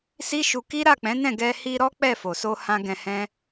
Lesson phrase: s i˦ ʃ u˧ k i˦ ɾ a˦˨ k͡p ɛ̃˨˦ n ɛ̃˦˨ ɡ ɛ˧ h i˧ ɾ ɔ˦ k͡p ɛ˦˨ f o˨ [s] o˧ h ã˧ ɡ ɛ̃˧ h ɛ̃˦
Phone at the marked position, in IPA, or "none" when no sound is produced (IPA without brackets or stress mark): s